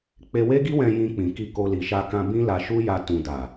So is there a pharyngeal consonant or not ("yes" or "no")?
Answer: no